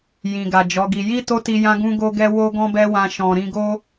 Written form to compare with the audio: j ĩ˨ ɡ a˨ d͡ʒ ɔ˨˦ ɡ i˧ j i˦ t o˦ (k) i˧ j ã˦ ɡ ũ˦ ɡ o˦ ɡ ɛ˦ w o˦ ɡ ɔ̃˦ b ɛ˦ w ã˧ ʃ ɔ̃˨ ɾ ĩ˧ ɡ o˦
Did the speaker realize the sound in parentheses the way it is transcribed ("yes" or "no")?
no